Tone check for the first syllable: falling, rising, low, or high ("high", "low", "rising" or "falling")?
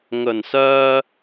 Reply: low